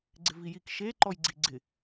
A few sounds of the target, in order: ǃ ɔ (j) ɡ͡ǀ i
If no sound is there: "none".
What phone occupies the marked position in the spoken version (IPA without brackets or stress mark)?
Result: j